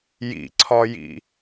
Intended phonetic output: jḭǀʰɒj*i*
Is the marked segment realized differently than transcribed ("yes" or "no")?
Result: yes